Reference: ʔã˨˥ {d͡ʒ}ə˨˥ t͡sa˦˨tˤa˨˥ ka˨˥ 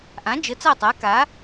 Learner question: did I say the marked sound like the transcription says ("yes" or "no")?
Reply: yes